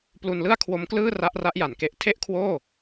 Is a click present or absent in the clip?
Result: absent